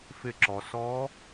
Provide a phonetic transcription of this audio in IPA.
fɪ˧˩ǁɔ˩ sɔ˧˥

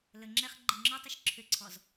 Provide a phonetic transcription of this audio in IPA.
lə ŋ͡ǁɛχɡ͡ǃi ŋ͡ǁɔtˤəʃ ǁʰʏǀʰɔz

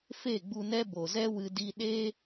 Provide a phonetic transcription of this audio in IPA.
fe˦˨ɡ͡bu˧nɛ˦ bo˨zɛ˦wɨ˧ di˧ɗeː˦

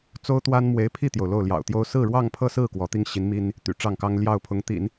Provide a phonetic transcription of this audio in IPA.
t͡so˥ʊ̯t̪wa˥n mwe˧˥ɪ̯pʰi˥˩t̪jo˩ʊ̯ lo˥˩ʊ̯ljɑ̰˨˩ʊ̯t̪jo˥ʊ̯ sɹ̩˥˧ɻwɑ˥˧ŋpʰɤ˥˧sɹ̩˥˩ kwɔ˧˥t̪i˥ŋɕi˧˥nmi˥n | t̪y̰˨˩ʈ͡ʂɑ˥˩ŋkɑ˥ŋ ljɑ˥˩ʊ̯pʰʊ˧˥ŋt̪ḭ˨˩˦n

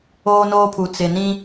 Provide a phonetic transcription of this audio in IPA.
oː˦noː˦pʰu˨ t͡sɪ˨nĩ˦

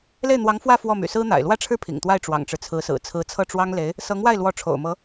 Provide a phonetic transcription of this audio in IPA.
le˥˩ɪ̯n̪wɑ˧˥ŋfwä˥˧ fwɔ˥˩my̰˨˩ sɹ̩˥n̪a̰˨˩ɪ̯ lwä˥ʈ͡ʂʰɻ̩˥˩ pʰḭ˨˩ŋt̪wa˥˩ɪ̯ ʈ͡ʂwɑ̰˨˩ŋʈ͡ʂɻ̩˦t͡sʰɹ̩˧˥sɹ̩˨˩ t͡sʰɹ̩˧˥t͡sʰɤ˥˩ʈ͡ʂwɑ˥ŋle˧˥ɪ̯ | sɤ˧˥ŋwa˥˩ɪ̯lwɔ˧˥ ʈ͡ʂʰo̰˨˩ʊ̯mɤ˧˥

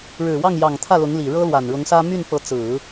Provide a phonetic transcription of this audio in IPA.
ɻɻ̩˨˩wɑ˥˩ŋjɑ˨˩ŋ t̪ʰä˥˩lʊ˧˥ŋli˨˩ ɻɤ˥lwa˨˩nɻʊ˧˥ŋsä˥ my˥˩n pɤ˧˥ t͡sɹ̩˨˩˦

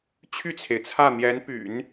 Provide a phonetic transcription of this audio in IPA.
t͡ɕʰy˥˩t͡sʰe˩ɪ̯t͡sʰä˥˩ n̪jɛ˧˥npy̰˨˩˦n

